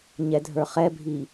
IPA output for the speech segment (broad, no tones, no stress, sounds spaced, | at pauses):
ɲ ɛ dʱ ə˞ χ ɛ bʱ i